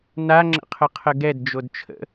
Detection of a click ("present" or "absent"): present